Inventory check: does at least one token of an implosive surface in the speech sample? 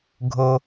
no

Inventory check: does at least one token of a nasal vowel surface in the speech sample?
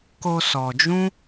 yes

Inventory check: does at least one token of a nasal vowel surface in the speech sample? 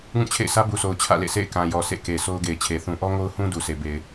yes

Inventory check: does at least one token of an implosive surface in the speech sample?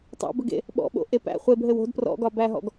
yes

